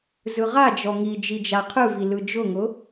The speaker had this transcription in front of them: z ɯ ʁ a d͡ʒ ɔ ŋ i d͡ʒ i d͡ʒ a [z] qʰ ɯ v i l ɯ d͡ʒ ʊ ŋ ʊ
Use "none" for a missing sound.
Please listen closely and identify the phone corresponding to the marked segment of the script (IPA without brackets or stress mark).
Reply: none